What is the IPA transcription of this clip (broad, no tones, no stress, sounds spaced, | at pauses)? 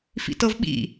f ḭ t ɤ v ɓ ḭ